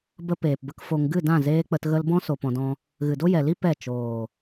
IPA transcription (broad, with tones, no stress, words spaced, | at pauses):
bə˧peː˨pbə˧k fo˧ŋ ɡɨ˦˨dã˦˨ zeː˧k͡pə˧t ɣə˧lbɔ̃˦ so˧pɔ̃˧dɔ̃˦ | ɣɨ˨do˦jɛ˨ li˦ pɛ˦˨ t͡ʃoː˨